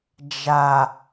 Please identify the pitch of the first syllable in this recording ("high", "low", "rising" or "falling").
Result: low